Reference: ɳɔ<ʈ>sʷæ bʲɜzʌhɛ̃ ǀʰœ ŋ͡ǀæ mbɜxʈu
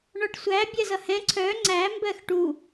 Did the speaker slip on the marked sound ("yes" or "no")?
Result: no